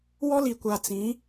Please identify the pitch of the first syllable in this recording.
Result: high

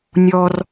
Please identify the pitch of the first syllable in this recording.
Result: high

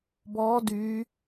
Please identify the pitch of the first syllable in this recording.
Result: rising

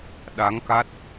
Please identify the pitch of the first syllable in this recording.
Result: rising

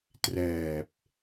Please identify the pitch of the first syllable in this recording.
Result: low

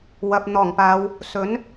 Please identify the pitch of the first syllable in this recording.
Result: low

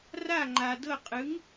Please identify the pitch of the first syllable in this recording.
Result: falling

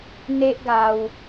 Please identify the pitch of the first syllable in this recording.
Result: high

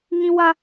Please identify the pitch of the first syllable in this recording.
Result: high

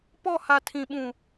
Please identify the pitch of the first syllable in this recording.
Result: falling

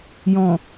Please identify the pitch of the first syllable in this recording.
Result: low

